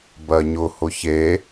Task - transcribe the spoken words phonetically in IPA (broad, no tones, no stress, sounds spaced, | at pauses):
b ɜ ɲ ʊ h ʊ ç e